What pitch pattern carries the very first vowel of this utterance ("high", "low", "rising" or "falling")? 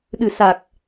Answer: low